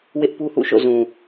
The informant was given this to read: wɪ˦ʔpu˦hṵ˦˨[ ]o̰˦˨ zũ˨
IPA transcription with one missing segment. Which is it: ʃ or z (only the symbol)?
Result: ʃ